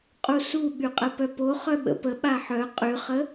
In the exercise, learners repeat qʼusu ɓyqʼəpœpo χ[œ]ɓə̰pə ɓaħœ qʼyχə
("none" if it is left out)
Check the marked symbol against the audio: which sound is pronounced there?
œ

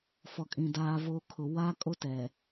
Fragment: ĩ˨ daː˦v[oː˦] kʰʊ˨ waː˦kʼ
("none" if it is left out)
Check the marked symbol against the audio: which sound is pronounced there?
o˦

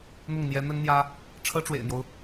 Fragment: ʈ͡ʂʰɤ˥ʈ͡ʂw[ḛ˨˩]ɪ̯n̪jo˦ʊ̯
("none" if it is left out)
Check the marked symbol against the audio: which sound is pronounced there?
ḛ˨˩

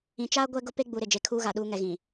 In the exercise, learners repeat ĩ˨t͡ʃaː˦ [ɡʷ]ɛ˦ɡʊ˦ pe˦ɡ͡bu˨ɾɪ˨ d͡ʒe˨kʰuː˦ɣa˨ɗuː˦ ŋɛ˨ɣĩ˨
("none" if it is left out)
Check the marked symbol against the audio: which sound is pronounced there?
ɡʷ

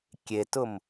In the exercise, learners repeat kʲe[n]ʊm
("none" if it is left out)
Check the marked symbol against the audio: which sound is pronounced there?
t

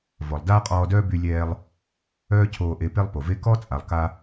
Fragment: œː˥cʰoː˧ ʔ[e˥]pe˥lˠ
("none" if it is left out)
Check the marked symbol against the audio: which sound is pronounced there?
e˧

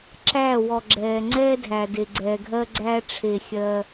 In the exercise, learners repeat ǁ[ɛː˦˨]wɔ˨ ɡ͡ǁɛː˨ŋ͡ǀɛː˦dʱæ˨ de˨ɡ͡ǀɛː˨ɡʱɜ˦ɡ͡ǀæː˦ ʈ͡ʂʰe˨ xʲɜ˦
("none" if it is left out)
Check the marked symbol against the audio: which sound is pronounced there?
æː˦˨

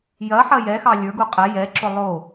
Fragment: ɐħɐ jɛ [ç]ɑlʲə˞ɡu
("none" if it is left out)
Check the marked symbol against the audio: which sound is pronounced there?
x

